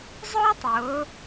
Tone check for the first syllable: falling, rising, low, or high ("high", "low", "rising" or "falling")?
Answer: high